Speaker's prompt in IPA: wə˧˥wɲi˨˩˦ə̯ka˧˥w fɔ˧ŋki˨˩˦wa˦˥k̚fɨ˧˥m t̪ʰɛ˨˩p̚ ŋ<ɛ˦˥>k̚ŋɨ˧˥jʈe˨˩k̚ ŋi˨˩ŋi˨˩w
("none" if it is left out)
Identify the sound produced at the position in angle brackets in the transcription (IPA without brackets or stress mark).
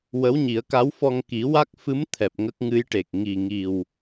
ə˦˥